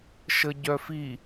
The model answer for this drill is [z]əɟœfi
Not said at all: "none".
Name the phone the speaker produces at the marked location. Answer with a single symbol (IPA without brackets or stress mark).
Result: ʃ